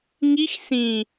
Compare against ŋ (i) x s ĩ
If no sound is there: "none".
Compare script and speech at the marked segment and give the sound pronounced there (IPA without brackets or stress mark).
i